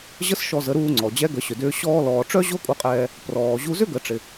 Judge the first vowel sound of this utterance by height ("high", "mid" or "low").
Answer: mid